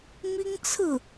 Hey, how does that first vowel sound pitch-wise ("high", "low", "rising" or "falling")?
high